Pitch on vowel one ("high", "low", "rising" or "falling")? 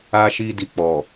high